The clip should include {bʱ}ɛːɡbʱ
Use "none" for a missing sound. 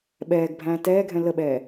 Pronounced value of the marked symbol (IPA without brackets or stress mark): ɓ